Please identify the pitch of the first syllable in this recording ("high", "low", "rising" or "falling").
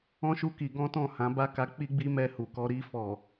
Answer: high